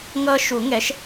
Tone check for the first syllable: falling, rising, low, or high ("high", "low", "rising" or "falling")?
high